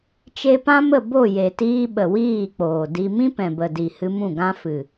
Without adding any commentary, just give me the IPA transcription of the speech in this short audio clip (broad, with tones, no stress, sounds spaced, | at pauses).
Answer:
t͡ʃ e˧ p ã˦ m ə˦˨ b o˦˨ j e˨ t iː˧ ɓ ə˨ w iː˦˨ k͡p oː˨ d i˧ m ĩ˦ p ɛ̃˨ b ə˨ d i˨ h ɨ˧ m ũ˦˨ ɡ ã˧ f ɨ˨